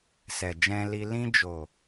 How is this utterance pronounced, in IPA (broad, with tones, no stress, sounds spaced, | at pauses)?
s ɛ˨ d͡ʒ ɛ̃˧ l i˧ l ĩ˧ d͡ʒ o˨